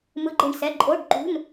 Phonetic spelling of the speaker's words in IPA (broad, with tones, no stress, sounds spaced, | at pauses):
m ɯ˧˥˧ ɡ͡ǃ e˦˨ ɳ s ɛ˧˥˧ ǃʼ o˧˥˧ ɖ ǃ ṳ˧˥˧ n